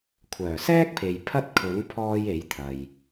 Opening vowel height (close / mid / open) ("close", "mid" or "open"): mid